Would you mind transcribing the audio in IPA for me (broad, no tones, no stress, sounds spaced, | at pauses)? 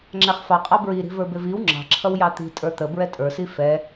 ŋ͡ǁ æ χ f ɑ qʼ ɑ b ɹ i ɾ i̤ v ə˞ b ɪ v i w ŋ͡ǁ ɑ̤ ǁʰ ʌ w j ɑ t̪ i̤ tʼ ə˞ t̪ ə b ɹ ɛ tʼ ə˞ s i f ɛ